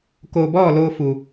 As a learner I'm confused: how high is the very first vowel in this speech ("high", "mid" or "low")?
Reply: mid